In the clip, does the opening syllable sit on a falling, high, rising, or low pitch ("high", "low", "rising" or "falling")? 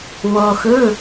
low